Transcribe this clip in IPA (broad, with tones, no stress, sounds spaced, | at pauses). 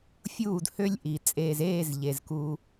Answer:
fʲ uː˦˨ d h ø˦ lʲ ʔ i˨ t͡sʼ eː˨ z eː˦˨ z ʎ e˨ z k u˦